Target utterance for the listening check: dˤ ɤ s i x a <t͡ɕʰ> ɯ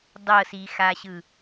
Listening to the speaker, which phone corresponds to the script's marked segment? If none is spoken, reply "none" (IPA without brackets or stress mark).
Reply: ɕ